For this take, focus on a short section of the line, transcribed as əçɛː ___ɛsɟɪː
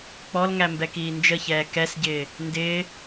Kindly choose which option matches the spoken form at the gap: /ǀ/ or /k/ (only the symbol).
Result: k